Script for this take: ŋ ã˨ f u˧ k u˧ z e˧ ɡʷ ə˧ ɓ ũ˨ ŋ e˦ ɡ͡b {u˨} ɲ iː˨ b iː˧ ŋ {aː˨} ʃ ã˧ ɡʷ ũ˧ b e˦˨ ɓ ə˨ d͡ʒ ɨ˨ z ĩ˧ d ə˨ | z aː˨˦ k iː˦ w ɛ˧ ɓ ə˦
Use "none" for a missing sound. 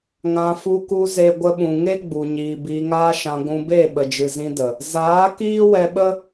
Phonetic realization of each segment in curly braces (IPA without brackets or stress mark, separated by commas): u˨, aː˦